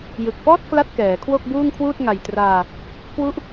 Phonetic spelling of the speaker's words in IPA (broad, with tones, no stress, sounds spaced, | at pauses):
j ɯ˨˩ k̚ f ɔː˥˩ t̚ k l a˥˩ t̚ k ɛː˩˦ kʰ w o˥˩ k̚ b uː˥˩ ŋ kʰ w uː˥˩ t̚ ŋ a˨˩ j t r aː˧ | k w u˥˩ ʔ